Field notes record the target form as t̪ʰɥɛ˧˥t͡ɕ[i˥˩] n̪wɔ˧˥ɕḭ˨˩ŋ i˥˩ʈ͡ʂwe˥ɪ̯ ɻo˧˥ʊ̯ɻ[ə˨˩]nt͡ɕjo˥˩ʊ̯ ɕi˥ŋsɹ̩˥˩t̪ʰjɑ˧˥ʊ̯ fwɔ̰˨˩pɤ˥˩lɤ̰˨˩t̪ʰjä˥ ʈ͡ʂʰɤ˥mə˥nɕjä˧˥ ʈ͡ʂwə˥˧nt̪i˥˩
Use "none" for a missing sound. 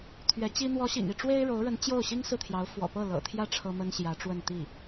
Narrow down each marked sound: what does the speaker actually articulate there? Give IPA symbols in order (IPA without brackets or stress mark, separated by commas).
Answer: i˥, ə˧˥